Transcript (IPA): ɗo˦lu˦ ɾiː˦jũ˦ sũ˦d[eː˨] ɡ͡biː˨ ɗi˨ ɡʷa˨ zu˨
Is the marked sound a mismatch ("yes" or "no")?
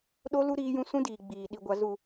yes